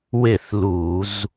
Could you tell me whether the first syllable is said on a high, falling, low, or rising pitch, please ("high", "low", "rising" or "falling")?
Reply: falling